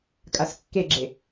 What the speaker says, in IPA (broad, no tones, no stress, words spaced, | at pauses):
kʼaskːeɡ͡ǁe